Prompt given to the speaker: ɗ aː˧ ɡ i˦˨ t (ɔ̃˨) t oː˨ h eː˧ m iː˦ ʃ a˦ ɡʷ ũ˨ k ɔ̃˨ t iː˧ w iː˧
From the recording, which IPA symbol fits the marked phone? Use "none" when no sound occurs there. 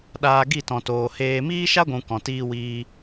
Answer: ɔ̃˨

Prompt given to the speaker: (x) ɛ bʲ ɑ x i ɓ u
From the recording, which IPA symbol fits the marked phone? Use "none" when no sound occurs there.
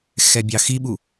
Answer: x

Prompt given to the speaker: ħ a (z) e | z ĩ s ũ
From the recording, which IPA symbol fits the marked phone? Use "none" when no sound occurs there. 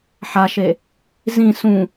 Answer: ʃ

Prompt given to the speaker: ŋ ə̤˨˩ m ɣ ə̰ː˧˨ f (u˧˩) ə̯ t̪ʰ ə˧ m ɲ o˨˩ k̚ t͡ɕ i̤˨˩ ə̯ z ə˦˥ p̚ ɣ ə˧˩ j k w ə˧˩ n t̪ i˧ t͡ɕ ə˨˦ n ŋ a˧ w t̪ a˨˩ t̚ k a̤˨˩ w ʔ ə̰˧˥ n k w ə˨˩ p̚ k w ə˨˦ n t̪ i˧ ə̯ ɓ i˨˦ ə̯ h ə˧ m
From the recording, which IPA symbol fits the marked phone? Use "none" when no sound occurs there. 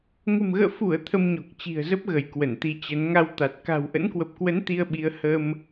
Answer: u˧˩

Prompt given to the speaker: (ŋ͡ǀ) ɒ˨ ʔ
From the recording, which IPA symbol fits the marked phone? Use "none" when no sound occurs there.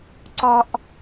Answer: ǀ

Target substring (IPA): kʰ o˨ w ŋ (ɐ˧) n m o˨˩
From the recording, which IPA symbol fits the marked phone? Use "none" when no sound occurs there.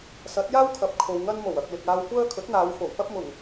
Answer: ɐ˧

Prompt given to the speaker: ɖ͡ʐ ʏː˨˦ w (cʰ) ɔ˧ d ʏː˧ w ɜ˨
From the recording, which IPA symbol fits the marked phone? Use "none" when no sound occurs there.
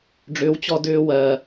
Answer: t͡ɕ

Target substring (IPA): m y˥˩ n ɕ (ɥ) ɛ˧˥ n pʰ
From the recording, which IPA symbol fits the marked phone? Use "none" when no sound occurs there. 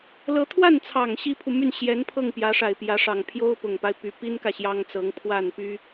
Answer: j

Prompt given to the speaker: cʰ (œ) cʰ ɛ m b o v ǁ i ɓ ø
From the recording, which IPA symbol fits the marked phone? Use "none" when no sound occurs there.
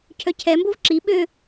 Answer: œ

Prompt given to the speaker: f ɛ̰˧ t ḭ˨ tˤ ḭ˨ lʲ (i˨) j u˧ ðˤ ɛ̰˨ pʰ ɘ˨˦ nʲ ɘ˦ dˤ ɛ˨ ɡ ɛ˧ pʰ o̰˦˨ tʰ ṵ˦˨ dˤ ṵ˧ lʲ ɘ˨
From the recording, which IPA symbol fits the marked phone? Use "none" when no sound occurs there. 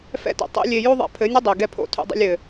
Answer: e˨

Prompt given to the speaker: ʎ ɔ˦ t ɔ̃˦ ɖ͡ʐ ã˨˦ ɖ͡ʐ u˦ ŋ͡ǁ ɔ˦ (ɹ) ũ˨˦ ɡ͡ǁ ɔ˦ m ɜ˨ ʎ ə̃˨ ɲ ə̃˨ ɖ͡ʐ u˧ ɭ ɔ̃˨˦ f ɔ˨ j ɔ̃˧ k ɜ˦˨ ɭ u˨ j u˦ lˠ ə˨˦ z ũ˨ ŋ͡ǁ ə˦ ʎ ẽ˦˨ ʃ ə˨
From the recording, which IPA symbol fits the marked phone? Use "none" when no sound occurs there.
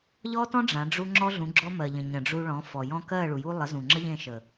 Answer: ɮ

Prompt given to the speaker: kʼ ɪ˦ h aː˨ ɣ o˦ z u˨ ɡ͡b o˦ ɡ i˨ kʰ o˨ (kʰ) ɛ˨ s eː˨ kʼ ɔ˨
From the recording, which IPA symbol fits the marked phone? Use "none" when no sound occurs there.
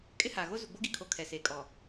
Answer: kʰ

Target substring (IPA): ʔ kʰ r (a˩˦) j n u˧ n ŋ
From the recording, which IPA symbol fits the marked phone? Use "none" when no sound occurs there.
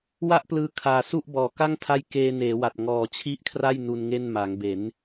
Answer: a˥˩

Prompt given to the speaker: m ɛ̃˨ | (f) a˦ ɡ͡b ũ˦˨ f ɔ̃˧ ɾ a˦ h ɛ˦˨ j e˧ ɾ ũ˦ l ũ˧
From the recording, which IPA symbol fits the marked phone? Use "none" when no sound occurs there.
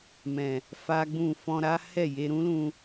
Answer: f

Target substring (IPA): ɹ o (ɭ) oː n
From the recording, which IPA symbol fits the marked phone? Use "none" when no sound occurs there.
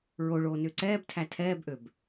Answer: ɭ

